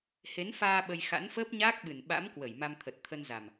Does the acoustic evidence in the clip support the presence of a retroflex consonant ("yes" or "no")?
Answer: no